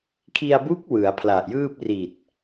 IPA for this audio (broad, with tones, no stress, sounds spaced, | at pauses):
kʰ i˧ a̯ b u˦˥ k̚ w ɯ˩˦ a̯ pʰ l a˨˩ ʔ j ɯː˥˩ p̚ r i˨˩ t̚